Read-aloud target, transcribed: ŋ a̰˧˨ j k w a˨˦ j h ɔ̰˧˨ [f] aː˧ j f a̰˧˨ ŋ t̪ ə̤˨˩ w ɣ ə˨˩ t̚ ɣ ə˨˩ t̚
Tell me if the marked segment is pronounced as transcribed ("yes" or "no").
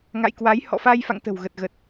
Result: yes